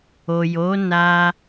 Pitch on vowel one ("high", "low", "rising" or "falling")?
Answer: low